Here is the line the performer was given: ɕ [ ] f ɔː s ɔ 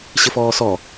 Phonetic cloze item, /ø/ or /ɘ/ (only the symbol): ɘ